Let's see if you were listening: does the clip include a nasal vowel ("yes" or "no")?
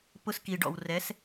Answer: no